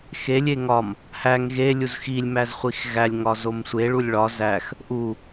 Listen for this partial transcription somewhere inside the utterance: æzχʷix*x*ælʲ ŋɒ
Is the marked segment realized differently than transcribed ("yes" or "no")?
yes